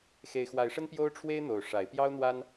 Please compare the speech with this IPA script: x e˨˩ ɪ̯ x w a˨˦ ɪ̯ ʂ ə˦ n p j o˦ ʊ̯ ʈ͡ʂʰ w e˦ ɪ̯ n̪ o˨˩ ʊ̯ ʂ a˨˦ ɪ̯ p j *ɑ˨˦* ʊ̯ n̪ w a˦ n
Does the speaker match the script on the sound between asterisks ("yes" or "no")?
no